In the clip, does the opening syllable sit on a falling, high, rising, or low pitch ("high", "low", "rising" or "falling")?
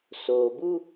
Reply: low